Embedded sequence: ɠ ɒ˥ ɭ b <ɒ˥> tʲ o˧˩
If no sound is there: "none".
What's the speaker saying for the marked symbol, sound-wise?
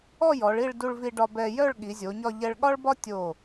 ɒ˥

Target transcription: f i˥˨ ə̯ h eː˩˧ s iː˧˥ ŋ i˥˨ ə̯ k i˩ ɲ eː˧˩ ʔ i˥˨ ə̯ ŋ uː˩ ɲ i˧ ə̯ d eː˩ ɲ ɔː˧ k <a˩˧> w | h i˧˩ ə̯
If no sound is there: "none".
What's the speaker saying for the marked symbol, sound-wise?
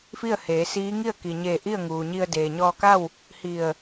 a˥˨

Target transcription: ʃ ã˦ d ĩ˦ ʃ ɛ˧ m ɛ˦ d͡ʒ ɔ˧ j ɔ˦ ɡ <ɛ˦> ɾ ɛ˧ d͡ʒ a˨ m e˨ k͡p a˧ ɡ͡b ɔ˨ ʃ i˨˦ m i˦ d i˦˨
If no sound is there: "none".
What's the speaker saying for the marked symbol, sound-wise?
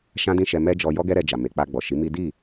ɛ˦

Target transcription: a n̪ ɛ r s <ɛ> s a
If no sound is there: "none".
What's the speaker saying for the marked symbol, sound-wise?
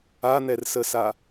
ə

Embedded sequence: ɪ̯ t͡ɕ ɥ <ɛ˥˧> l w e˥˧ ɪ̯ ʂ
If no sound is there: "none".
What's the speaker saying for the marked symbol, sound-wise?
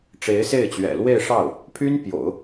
ɛ̰˨˩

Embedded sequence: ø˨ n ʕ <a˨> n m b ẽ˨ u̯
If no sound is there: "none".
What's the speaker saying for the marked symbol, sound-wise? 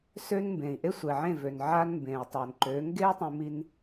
a˦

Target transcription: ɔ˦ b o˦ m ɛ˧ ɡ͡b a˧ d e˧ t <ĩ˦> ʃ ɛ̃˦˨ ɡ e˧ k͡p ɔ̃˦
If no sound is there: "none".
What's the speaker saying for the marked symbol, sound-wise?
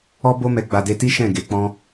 i˦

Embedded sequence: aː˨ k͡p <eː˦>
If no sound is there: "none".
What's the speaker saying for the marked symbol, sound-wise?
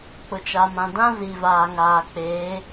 eː˨˦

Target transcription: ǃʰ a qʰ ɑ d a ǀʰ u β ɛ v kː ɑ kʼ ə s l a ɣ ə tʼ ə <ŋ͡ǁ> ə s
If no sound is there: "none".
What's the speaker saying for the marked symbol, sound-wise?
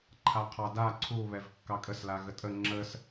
ŋ͡ǁ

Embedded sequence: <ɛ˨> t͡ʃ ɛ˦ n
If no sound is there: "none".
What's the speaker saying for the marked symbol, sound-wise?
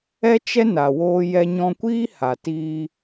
ɛ˦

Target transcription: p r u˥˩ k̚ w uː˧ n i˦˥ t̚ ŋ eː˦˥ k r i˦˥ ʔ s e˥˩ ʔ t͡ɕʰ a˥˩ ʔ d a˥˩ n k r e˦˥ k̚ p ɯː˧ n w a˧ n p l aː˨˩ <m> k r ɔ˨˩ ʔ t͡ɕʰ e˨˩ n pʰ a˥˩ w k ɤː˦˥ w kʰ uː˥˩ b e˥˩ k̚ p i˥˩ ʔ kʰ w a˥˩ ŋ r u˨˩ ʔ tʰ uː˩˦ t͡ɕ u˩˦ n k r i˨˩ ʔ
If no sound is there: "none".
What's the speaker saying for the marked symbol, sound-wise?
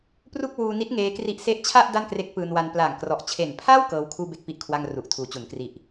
ŋ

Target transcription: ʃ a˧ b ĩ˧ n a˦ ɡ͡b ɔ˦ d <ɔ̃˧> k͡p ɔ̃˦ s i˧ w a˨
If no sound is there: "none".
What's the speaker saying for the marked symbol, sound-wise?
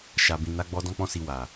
ɔ̃˦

